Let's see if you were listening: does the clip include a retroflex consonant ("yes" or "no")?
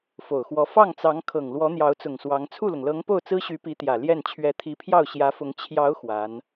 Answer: no